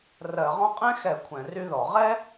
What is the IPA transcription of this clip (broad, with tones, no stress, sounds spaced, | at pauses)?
r ɜ˧˩˧ ʁ ɔ̃˥ qʼ ɛ̃˥ x ɛ˧˩˧ kʷʰ ɛ̃˧˩˧ r y˥ ð ɔ˧˩˧ ʁ ɛ˥